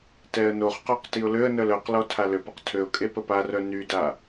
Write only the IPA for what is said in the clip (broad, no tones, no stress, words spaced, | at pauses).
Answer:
tɛə̯noχqɔq tiʊ̯løə̯nœl œqlɔ tʰaløpəq tʰøʊ̯kʼe pəparœ nyda